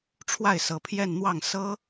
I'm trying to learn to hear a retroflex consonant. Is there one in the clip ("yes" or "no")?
yes